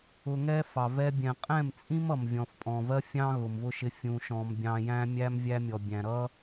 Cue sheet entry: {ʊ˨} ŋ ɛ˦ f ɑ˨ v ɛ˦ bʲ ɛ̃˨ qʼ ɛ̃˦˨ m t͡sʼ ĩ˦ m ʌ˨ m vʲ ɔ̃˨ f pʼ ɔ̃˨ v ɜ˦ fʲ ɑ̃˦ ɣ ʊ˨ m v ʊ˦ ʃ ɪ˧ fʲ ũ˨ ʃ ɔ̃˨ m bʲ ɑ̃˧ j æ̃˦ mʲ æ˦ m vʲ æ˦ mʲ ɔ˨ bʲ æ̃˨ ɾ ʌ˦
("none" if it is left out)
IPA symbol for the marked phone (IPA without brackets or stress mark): ʊ˧